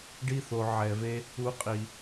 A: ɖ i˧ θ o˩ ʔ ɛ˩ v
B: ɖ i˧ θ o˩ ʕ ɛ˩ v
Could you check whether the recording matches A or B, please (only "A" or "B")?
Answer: B